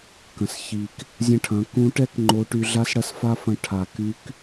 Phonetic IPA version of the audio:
k ɐ̃˩ s ç i˩ k | zʲ ɐ̃˧ ʈʰ ɐ̃˩˧ k ũ˧˥ ʈ ɛ˥ k ŋ͡ǃ o˧˥ ʈ y˧ ɮ a˥ s ɽ ɐ˥ s f a˥ f ɐ̃˧ ʈʰ a˩ k y˧˥ k

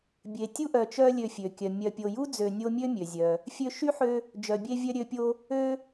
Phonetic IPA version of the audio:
bʲ e˨ tʲ u˥ ʔ œ˨ t͡ʃ œ˦ lʲ ø˨ fʲ ø˩ kʲ œ˩ mʲ œ˨ pʲ o˨ j u˥ d͡z ø˨ nʲ o˦ mʲ ø˥ mʲ ø˩ zʲ œ˩ | fʲ ø˦ ʃ y˥ ħ ø˦ | d͡ʒ œ˨ bʲ e˦ vʲ œ˦ ɾʲ ø˦ pʲ o˦ | ø˦

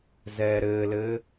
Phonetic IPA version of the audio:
z ɛː ɾ ɘː l ɘː

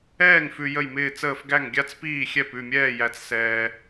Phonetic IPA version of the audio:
ɛː˥˨ ŋ f ʉ˧ j ə˥˨ j m ɪː˥˨ t͡s əː˥˨ f ɡ æ˥˨ ŋ ɡʲ a˥˨ t͡s p iː˥˨ xʲ ɛ˥˨ p ʉ˥˨ mʲ ɛː˥˨ j æ˧ t͡s s ɛː˧

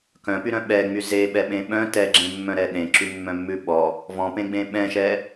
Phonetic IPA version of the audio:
k œ̃ p y ɾ œ̃ ɓ ɛ ŋ͡m y z e ɓ ɛ ɓ ẽ ɓ œ̃ t ɛ ɡ͡ǁ ẽ mː œ̃ ɾ ɛ ɗ ẽ ǁ y mː œ̃ mː ʉ ɓ ɔ | v ɔ̃ p ẽ ɡ͡b ẽ ɓ ɛ̃ ʃ ɛ

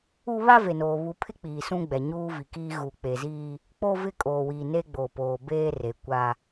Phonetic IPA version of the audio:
u˦ β a˦ v e˨ n oː˨ β u˨ pʰ ɪ˦ k͡p iː˨ s ũ˦ ɡ͡b ɛ˨ ɲ uː˦ v i˨ k iː˦ ɣ u˨ k͡p e˨ z iː˦ | k͡p o˦ v ɪ˦ kʼ oː˨ w iː˨ n e˦ ɡ͡b o˨ p oː˨ b eː˦ r e˨ kʷ a˦

